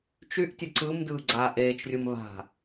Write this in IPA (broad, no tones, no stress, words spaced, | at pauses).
t͡ʃyʔtʲə ǀɯmdɯː ɡ͡ǀaːʔeːt͡ʃrʲum βa̤